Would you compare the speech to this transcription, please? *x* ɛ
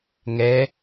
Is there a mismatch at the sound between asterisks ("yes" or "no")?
yes